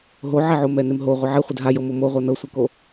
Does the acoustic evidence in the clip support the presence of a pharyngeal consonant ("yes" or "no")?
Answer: yes